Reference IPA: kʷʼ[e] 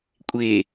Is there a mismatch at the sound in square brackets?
no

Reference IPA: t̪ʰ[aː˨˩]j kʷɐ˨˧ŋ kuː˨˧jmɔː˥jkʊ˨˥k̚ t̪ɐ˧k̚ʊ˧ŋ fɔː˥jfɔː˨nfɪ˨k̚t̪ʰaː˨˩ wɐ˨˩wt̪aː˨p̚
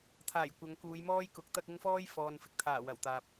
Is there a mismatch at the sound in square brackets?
no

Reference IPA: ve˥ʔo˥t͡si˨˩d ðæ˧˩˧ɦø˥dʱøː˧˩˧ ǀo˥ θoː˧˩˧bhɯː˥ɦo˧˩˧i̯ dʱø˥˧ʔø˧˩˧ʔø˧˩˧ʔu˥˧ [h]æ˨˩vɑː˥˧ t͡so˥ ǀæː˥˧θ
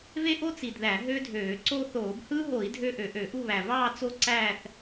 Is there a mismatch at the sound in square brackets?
yes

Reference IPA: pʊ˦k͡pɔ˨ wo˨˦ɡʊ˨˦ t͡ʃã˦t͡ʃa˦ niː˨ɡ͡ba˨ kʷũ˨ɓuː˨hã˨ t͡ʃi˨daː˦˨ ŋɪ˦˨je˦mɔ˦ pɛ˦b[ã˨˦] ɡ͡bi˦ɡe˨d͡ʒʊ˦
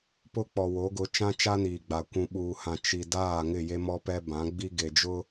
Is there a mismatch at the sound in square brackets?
no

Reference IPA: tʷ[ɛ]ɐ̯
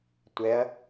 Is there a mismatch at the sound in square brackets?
no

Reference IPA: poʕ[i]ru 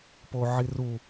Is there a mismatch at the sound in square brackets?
no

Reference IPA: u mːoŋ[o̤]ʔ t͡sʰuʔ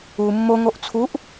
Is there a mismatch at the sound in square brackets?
yes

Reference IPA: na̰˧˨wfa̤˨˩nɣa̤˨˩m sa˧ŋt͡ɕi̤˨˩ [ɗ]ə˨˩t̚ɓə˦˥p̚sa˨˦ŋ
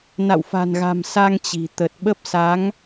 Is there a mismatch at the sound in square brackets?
yes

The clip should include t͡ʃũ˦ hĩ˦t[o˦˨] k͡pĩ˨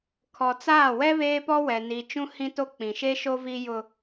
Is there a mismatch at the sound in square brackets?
yes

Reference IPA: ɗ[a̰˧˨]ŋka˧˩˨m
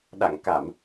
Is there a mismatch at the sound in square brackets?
no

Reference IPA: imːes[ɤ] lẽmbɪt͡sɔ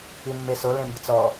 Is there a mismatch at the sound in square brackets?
yes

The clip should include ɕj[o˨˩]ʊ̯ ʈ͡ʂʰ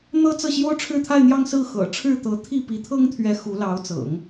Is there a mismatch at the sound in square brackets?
yes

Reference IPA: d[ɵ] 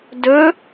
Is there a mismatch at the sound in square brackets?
no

